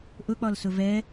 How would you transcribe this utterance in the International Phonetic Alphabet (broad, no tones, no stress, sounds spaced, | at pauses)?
ʔ ʊ k͡p ɒ l s ʊ v ɛ